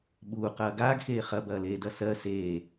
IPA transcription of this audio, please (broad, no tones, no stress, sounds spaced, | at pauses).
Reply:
ɓ uː q ɐː ɡ aː ɡ x eː χ ɐ b ɐː l eː d ɐ s ɜ s eː